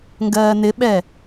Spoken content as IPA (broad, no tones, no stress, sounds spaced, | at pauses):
ŋ ɡ ɜː n ɪ ɓ ɛ